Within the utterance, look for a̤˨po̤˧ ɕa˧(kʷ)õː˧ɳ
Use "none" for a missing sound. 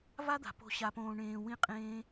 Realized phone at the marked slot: p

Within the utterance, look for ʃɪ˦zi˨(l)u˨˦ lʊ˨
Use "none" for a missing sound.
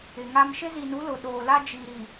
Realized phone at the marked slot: n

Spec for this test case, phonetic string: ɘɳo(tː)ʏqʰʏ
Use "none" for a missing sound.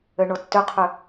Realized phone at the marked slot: tː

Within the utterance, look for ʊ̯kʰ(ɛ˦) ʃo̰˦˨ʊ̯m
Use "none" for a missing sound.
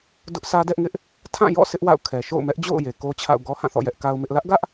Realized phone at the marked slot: ɛ˨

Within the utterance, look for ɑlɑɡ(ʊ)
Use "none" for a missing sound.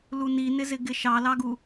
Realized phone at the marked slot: u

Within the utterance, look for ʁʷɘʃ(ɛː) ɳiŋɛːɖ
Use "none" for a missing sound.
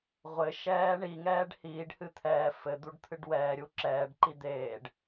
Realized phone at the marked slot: ɛː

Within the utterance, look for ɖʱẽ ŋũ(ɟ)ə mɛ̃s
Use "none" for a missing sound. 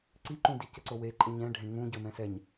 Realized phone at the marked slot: ɟ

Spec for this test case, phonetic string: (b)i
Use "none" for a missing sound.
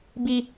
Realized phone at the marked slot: b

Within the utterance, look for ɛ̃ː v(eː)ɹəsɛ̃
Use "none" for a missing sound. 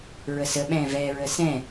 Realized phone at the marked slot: ɛː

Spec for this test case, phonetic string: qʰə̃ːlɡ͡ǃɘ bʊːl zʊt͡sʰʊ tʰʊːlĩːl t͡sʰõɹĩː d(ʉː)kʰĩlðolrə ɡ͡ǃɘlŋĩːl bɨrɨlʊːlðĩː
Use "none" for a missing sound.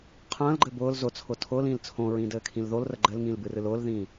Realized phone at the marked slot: ɘː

